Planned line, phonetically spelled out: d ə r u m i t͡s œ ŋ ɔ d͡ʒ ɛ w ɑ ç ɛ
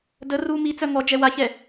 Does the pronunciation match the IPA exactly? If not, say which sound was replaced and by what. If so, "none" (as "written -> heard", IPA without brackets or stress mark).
ɑ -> a